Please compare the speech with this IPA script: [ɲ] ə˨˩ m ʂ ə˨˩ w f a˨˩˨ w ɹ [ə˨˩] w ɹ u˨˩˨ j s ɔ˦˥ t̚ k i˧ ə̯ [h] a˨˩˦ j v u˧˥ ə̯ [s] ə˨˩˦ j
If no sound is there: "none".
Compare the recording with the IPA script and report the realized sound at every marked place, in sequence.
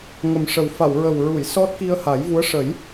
ŋ, ə˨˩, h, ʂ

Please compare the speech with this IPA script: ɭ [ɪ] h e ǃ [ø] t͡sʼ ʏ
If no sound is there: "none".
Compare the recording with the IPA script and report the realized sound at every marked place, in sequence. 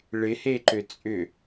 ɪ, ø

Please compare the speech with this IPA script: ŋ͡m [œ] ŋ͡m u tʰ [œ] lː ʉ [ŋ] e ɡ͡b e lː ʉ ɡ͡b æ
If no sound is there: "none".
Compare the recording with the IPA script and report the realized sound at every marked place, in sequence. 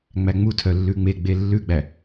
æ, œ, ŋ͡m

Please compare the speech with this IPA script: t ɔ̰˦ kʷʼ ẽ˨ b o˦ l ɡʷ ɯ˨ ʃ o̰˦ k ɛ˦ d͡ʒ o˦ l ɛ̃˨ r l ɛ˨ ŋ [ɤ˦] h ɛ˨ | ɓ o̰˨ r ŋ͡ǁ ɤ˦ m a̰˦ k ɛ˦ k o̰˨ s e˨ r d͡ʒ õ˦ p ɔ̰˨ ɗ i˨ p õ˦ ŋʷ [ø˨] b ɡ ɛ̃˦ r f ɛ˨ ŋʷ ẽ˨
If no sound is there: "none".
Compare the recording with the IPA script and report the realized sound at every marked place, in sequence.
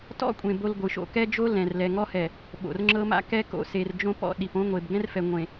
ɔ˦, e˨

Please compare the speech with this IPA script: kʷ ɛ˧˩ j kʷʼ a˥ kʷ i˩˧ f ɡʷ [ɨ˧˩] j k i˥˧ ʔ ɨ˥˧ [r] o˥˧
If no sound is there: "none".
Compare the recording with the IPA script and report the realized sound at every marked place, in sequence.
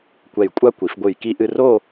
ɨ˧˩, r

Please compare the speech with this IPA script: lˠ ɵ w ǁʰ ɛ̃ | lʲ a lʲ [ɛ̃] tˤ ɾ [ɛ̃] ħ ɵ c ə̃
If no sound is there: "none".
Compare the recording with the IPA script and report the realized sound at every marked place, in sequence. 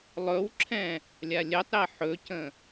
ɛ, ɛ

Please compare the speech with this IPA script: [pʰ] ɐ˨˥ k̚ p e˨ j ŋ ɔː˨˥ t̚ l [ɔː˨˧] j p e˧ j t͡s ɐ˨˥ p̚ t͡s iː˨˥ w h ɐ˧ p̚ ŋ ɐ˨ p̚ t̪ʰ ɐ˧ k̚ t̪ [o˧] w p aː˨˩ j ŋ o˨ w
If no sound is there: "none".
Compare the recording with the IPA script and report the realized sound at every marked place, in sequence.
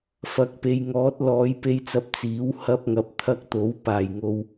f, ɔː˨˧, o˨˥

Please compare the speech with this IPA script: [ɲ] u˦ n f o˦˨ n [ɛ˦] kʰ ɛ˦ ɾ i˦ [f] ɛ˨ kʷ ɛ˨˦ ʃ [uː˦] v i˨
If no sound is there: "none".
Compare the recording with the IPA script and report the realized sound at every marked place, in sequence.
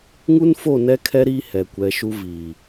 ŋ, ɛ˦, h, u˦

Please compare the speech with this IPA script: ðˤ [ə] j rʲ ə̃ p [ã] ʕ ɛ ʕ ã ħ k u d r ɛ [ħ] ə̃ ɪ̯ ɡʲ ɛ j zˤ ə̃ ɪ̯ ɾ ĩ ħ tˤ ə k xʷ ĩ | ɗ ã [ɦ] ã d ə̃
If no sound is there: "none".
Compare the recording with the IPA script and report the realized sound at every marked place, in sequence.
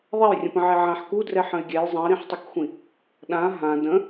ɛ, ə̃, ħ, ɦ

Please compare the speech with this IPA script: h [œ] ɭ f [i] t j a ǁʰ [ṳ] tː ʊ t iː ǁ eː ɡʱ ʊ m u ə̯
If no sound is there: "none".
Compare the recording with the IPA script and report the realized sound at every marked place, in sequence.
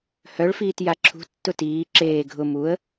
œ, iː, ṳ

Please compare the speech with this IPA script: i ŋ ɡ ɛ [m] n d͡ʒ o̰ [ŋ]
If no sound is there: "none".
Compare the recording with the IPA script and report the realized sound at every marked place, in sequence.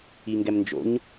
m, ɲ

